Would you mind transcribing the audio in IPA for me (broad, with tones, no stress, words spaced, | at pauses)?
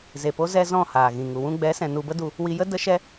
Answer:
ze˨po˧zɛ˧ zɔ̃˦˨haː˨ɣĩ˨ ŋu˨wũ˧ ɡ͡bɛ˨˦sɛ̃˨ nu˧bə˦du˧ | wi˧jə˦ də˦ʃɛ˦